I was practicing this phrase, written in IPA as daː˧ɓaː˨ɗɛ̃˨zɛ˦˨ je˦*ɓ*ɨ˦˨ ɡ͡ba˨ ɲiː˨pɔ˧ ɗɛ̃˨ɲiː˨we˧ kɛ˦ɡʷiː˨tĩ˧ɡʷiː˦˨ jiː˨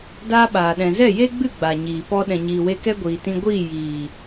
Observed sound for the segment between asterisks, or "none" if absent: ɡ͡b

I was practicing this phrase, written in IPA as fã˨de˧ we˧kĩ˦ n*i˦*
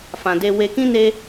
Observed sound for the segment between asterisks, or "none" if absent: e˦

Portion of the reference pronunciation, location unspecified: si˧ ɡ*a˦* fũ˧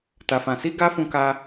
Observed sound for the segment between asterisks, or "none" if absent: a˦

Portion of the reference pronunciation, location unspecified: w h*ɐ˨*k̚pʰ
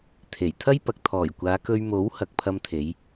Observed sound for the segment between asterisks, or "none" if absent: ɐ˨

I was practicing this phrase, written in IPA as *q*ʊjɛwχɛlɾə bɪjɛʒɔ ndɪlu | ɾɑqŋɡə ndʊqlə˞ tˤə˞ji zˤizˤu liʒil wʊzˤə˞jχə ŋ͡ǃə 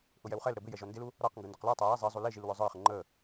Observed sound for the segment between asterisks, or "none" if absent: ʔ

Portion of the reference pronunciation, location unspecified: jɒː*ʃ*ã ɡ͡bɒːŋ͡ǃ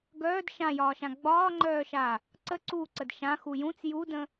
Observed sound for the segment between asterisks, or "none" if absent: ʃ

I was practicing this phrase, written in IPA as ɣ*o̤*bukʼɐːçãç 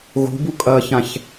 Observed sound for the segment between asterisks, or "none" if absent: o̤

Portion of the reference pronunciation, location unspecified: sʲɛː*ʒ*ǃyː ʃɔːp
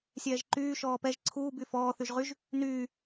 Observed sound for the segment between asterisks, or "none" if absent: ʒ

